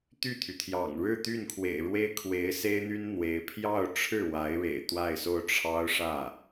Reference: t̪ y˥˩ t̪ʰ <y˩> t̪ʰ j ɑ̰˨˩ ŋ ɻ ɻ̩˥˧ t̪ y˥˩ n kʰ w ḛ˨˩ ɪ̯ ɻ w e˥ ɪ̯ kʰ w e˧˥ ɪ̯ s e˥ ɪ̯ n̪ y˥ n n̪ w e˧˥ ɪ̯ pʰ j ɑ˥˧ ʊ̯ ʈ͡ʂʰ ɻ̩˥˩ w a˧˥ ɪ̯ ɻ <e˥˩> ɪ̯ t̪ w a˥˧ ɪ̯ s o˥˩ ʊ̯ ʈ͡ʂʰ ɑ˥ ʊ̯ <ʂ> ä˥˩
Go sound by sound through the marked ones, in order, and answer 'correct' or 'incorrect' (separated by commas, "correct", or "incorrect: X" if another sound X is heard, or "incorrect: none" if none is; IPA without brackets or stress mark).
correct, incorrect: ḛ˨˩, correct